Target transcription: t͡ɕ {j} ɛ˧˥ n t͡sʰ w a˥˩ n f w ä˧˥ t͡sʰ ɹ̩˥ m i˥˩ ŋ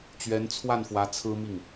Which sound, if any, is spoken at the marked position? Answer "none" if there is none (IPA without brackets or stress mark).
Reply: ɥ